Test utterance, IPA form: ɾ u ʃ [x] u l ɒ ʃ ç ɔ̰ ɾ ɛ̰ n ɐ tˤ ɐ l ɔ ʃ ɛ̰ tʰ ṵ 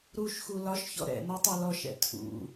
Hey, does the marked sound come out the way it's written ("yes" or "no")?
yes